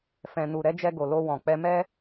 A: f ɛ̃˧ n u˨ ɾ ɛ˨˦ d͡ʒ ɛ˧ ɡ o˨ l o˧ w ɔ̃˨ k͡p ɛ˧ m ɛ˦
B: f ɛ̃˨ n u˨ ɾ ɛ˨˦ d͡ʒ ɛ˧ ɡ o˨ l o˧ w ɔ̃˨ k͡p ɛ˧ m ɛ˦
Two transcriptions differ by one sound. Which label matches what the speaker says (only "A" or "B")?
B